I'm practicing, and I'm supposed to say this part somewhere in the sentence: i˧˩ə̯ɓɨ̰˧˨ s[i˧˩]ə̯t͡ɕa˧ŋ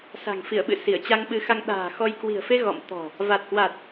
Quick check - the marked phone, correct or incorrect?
correct